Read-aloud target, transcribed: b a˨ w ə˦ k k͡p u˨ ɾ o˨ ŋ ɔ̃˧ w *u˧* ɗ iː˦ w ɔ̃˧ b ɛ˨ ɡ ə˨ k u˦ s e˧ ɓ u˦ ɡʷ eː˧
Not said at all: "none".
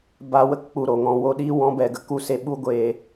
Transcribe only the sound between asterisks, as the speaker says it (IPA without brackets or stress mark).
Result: o˧